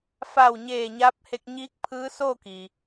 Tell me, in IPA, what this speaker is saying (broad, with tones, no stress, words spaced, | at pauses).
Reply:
fa˧˩wɲeː˧˩ ɲaː˧˥p̚he˧k̚ɲiː˧˥k̚pʰɯː˧˥ soː˥˨ki˩